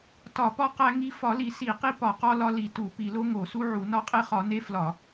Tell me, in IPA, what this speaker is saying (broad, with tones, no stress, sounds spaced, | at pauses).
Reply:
t ɒ˧˩˧ p ɒ˦ q æ˦ ŋ i˦ f ɒ˧˩˧ l i˧˩˧ s i˧˩˧ q i˦ p ɒ˧˩˧ q ɒ˦ l ɒ˦ l i˧˩˧ t u˧˩˧ p i˧˩˧ l o˦ ŋ o˧˩˧ s u˦ ʕ u˧˩˧ n ɒ˦ qʼ e˦ χ ɒ˧˩˧ n e˦ f l ɒ˧˩˧